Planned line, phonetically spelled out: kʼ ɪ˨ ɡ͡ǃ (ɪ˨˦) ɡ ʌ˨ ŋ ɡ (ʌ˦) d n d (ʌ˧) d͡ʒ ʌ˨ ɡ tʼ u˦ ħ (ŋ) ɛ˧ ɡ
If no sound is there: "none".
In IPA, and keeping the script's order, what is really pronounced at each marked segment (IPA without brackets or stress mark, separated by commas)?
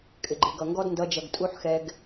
ɪ˨, ɔ˦, ʌ˧, x